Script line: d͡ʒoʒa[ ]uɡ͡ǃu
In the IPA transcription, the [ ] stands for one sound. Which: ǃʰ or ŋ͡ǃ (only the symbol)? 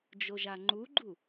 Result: ŋ͡ǃ